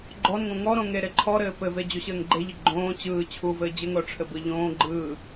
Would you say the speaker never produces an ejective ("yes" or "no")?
yes